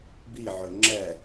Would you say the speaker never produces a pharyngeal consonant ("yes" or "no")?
no